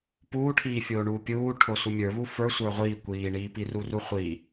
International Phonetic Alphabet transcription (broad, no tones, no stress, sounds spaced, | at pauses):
p uː ʈʰ iː fʲ oː ɳ uː pʲ uː ʈʰ o s u mʲ ə˞ β u f ə˞ sʷ ə˞ ʁʷ iː kʷ iː ɳ iː p i r u r u χʷ i